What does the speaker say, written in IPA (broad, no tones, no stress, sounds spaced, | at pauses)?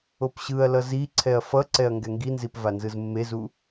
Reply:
o p ɕ ɯ ɐ̯ l ʌ z i ǀʰ ɛ ɐ̯ f ʌ ǀ ɛ ɐ̯ ŋ ɡ ɛ ŋ ɡ i n z i p v a n z ɯ z mː e z u